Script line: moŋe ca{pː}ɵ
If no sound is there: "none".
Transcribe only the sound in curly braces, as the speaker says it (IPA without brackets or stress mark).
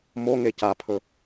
pʰ